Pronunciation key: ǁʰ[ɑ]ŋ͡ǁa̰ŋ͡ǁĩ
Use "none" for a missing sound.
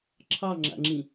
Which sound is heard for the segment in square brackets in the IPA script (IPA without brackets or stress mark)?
ɑ